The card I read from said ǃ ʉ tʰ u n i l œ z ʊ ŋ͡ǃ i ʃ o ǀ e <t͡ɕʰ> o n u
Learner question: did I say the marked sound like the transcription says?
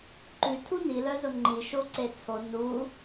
no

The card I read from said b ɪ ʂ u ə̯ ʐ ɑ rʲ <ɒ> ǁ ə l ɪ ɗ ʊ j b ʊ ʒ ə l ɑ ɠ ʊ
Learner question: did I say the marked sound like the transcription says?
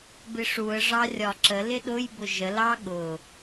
yes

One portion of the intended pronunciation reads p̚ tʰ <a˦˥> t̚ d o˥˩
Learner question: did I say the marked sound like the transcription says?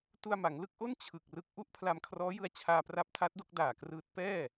yes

